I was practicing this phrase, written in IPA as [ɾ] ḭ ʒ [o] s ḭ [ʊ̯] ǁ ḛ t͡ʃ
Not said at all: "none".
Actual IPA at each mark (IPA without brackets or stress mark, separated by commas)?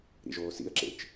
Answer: ɾ, oː, ə̯